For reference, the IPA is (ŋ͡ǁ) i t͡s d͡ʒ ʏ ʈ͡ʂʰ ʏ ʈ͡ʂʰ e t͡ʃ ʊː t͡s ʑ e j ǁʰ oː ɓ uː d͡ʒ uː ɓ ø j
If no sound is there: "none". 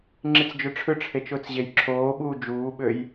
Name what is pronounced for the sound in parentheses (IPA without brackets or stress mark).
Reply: ŋ͡ǁ